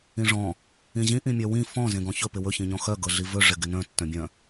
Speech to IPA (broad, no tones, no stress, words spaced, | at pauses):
ĩʐɔ̃ | ĩʑĩ ʔĩmʲœwĩ fɔ̃ zẽɡɔ̃çɵ pɪwɵ çĩɲɔ̃xœ ɡɤɮivɵ ʐɪɡɪnœ̃ tːœ̃bʲœ̃